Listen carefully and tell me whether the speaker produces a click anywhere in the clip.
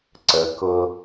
yes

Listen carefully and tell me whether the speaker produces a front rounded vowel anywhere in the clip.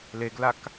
no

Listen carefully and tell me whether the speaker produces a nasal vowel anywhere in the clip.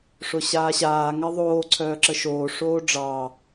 no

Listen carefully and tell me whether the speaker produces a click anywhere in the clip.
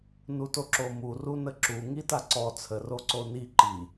yes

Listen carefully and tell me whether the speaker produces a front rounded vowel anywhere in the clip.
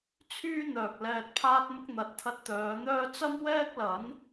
yes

